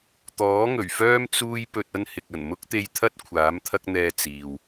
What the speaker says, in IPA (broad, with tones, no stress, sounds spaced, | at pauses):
t̪ ɔː˨˥ ŋ ɵ˨˩ ɥ f œː˥ m t͡s uː˥ j p ɵ˧ t̚ ɐ˥ n h ɪ˨ k̚ ɐ˨˩ n m ʊ˥ k̚ t̪ e˧ j t̪ʰ ɐ˥ t̚ kʷʰ aː˨˥ m t̪ʰ ɐ˥ k̚ n̪ ɛː˧ t͡s iː˨ w